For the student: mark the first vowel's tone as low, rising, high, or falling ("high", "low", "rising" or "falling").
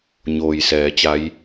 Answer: low